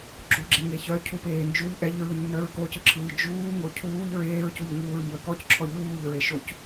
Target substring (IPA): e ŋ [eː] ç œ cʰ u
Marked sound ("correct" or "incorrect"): incorrect